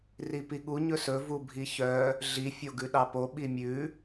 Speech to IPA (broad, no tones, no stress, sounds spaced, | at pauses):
r i p i ɠ u ɲ ɵ s ɵ v u bʱ i ç œ | ɮ i fʲ o ɡ ʉ ɗ ɑ p o ɓ i mʲ ʉ